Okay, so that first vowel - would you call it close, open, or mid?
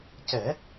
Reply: mid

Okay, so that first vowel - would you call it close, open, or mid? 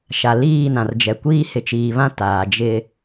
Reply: open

